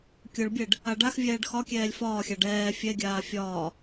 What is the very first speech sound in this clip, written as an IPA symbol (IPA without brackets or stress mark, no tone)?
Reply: kʲ